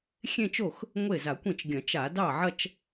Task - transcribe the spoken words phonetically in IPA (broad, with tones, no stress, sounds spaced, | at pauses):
xʲ ẽ˥˧ t͡ʃ o˥˩ x | ŋʷ e˥˩ z a˧˩˧ kʷ ẽ˥˩ t͡ʃ ɡʲ ɐ̃˧˩˧ t͡ʃ a˧˩˧ d ɑ˥˩ ʕ ɐ˥˧ t͡ʃ